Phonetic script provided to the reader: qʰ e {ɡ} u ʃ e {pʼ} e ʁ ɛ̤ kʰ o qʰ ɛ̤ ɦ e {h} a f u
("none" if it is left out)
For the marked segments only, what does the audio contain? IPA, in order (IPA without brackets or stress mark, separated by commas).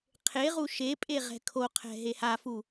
ʁ, pʼ, h